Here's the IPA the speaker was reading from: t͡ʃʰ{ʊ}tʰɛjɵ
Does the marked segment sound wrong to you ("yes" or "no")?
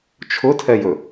no